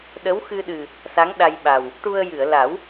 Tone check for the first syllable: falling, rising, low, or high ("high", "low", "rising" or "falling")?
rising